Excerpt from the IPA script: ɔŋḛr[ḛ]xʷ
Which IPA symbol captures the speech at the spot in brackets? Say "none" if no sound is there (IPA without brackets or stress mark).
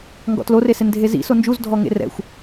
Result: ɛ̰